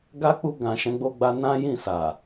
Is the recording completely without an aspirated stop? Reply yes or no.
yes